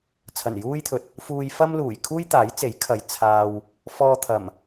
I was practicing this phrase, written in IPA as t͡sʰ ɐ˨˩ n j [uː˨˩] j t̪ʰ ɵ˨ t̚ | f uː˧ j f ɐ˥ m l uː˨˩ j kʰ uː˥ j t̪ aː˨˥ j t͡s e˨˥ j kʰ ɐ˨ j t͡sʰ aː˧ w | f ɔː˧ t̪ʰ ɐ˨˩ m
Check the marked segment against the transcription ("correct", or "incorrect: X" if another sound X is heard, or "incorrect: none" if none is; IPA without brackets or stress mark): incorrect: uː˥